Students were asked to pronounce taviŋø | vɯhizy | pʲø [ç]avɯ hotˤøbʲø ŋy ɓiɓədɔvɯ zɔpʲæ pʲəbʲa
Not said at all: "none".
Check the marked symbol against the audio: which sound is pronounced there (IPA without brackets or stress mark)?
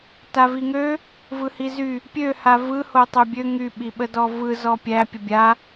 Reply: h